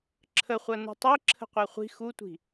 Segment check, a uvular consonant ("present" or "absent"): present